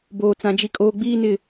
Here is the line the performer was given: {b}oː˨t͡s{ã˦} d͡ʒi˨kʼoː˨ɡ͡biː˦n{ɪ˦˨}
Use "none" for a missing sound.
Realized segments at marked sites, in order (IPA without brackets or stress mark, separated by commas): b, ã˨, ɪ˦˨